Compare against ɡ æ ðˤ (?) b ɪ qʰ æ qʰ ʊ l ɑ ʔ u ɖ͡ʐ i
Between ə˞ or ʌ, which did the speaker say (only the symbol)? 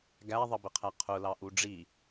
ʌ